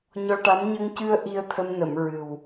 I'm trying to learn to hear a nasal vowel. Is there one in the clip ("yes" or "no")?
no